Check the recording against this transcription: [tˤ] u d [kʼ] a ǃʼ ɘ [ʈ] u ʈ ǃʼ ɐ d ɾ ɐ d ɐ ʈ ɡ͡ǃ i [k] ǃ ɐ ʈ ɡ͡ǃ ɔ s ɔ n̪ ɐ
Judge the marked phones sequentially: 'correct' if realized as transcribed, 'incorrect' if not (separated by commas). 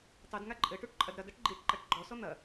correct, incorrect, correct, incorrect